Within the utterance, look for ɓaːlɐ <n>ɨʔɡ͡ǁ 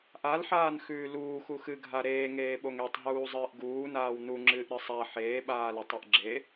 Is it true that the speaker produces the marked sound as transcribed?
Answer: no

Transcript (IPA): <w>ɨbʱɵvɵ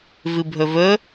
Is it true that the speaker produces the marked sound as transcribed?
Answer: no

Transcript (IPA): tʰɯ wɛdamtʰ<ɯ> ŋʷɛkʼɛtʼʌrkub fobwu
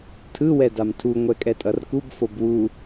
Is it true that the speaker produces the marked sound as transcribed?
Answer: no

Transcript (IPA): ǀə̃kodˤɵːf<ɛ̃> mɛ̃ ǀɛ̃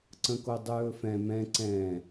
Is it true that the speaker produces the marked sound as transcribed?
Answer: yes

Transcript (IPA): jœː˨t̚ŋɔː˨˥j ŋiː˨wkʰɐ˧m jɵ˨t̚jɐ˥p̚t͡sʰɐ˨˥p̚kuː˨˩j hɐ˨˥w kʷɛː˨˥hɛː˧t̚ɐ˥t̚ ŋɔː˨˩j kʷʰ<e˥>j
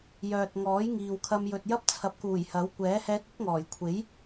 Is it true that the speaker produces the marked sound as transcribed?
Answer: no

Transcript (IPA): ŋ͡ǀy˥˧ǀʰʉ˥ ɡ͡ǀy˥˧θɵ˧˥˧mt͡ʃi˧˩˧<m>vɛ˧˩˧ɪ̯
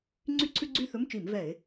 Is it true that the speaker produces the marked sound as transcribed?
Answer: yes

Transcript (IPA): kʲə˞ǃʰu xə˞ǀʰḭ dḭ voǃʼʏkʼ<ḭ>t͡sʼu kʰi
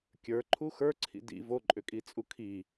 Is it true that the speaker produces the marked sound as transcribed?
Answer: no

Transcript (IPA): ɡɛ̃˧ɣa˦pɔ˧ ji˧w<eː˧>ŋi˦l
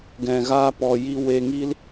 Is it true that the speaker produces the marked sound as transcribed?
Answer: no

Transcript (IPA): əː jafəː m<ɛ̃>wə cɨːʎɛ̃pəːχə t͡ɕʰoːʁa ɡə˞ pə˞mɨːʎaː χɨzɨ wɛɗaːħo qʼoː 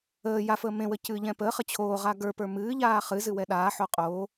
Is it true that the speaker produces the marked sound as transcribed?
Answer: no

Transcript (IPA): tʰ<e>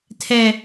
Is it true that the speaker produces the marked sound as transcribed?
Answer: no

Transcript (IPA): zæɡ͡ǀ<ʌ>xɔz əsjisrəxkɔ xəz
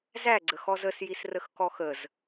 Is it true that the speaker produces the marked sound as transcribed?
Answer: no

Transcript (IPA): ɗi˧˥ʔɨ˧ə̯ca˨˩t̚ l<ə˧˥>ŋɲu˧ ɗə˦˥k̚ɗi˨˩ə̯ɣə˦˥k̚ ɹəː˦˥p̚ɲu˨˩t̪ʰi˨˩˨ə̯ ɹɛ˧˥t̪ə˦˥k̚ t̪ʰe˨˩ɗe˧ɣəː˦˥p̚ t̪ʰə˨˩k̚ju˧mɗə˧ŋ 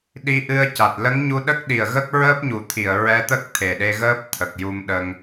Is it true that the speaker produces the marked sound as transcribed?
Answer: yes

